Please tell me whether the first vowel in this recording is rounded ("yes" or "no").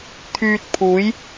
yes